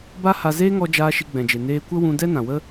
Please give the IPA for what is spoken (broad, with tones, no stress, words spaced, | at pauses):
ba˦ha˧ zeː˦ŋɔ˧d͡ʒaː˧ ʃi˧ɡ͡bɛ̃˨d͡ʒe˨ neː˧kʷə˦ wũ˧dɛ˦ nã˨wə˦